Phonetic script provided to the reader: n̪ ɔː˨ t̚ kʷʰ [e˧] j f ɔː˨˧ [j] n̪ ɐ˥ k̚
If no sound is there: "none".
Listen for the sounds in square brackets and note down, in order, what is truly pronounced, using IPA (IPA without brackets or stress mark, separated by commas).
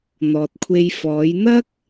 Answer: e˧, j